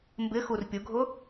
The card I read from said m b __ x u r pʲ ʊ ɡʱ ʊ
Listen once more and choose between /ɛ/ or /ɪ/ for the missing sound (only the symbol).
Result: ɪ